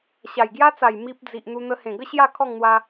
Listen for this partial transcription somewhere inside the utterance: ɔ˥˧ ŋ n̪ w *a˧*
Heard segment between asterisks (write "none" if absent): a˧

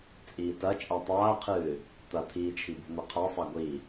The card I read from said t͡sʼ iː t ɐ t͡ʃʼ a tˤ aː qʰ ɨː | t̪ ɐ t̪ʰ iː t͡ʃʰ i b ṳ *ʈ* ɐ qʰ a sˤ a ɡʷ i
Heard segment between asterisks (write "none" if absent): n̪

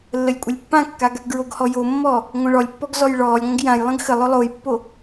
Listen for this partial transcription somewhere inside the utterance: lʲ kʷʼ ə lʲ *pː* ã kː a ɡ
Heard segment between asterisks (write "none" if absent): pː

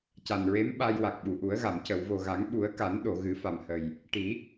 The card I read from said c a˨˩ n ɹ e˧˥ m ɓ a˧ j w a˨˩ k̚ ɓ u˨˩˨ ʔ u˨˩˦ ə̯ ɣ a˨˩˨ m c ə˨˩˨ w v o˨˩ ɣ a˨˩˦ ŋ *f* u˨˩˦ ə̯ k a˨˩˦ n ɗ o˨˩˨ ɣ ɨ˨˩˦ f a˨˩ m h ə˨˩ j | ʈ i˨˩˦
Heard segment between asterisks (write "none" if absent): ɓ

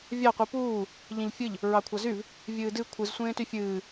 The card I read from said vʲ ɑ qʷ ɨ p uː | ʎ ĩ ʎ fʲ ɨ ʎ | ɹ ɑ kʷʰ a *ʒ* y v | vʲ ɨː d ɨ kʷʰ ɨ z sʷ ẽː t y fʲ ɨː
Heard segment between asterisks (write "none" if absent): z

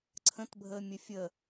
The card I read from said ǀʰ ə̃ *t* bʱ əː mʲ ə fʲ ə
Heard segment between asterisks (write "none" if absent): t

